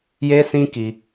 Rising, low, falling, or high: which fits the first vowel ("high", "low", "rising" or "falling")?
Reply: high